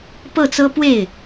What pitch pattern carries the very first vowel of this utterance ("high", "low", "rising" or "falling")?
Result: falling